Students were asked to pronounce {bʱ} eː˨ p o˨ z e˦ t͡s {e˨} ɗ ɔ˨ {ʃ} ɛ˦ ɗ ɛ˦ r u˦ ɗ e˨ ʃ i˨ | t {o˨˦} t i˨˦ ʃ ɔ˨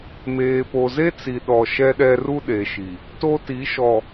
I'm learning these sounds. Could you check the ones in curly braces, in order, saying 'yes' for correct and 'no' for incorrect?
no, no, yes, no

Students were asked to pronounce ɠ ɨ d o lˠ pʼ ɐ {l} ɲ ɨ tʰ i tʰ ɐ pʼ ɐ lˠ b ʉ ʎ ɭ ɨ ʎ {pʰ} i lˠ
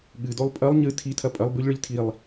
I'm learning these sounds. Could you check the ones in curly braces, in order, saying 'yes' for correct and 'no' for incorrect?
no, no

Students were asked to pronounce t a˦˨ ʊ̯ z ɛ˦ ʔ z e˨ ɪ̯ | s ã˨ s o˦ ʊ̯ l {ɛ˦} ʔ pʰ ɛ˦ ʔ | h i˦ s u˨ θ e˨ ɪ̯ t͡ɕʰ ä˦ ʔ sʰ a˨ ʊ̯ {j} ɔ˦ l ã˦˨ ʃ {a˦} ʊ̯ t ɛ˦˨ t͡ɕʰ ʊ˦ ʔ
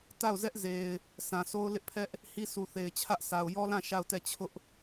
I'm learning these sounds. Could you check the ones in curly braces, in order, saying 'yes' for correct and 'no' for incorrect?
no, yes, no

